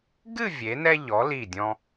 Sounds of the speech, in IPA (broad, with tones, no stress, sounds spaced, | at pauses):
ɡ ɨ˥˧ vʲ e˩˧ n ɛ˧ ʎ ɔ˩˧ l i˧˩ dʲ ɔ̃˧